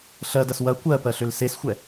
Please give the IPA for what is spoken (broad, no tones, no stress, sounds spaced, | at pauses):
ɬ ɜ d ɐ s w ɐ kʷ ɜ p ɜ ɬ ʏ l s e s xʷ ɛ